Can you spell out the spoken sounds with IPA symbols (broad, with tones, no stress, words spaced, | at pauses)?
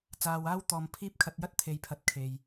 t͡saː˧waː˥w t̪ɔː˧mpʰiː˥p̚ kʰɐ˧t̚jɐ˥t̚ t̪ʰe˧jpʰɐ˧t̚kʰe˨j